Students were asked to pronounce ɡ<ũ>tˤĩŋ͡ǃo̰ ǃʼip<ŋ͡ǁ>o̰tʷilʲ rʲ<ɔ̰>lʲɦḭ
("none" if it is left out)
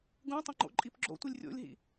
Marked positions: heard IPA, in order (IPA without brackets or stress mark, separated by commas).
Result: ũ, ɡ͡ǁ, o̰